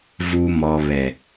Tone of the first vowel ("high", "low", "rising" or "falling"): low